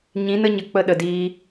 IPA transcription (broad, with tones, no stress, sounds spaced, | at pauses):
ɲ ĩ˨˦ n ə˦ ɲ ə˨ k͡p ə˧ ɗ ə˨ d iː˧